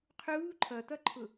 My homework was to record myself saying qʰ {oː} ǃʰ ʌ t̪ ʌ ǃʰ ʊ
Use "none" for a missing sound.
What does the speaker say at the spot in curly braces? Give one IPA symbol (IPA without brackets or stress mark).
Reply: uː